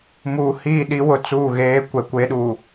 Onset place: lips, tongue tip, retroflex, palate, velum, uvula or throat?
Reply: lips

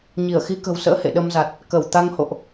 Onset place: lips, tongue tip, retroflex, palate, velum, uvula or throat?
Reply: palate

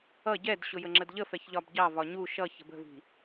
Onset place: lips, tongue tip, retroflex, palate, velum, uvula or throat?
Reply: palate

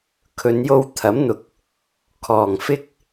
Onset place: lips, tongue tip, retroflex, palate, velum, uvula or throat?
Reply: velum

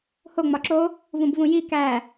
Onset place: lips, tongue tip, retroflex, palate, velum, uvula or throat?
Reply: throat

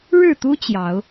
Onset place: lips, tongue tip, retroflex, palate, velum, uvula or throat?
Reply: retroflex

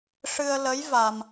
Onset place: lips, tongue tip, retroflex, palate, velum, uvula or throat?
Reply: retroflex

